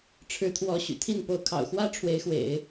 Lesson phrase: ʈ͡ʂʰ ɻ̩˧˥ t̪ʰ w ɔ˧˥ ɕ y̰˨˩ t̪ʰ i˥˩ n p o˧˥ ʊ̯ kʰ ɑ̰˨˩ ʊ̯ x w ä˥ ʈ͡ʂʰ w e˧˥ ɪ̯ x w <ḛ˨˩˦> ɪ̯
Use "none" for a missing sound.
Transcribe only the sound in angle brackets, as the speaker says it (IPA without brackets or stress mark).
ḛ˨˩˦